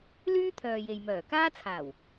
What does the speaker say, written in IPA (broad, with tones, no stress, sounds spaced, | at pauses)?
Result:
l yː˥ t̪ʰ œː˨ j e˨ j m œː˨˩ k aː˥ t͡sʰ aː˨˩ w